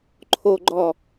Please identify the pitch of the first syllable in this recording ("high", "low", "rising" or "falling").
low